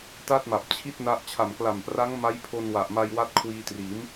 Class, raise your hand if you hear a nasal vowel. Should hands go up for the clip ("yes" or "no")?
no